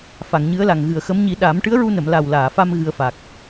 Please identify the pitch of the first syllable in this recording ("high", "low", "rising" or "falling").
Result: low